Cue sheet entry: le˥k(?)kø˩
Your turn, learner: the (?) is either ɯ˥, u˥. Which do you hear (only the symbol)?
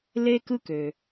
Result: ɯ˥